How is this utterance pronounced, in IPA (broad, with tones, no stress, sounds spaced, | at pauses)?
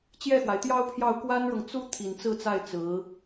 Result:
t͡ɕ j ɛ˥˩ x w a˩ ɪ̯ t̪ j ɑ˥ ʊ̯ pʰ j ɑ˥˩ ʊ̯ k w a˥ n ɻ ɤ˨ ŋ t͡s u˥ t̪ʰ i˨˩ n t͡s ɹ̩˥˧ t͡s a˥˩ ɪ̯ t͡s ɹ̩˧˥